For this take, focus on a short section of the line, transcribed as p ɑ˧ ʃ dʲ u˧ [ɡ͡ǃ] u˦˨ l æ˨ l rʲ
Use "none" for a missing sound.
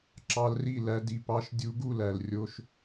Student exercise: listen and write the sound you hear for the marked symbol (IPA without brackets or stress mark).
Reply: ɡ